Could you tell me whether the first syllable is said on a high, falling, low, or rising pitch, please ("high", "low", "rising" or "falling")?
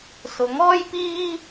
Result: rising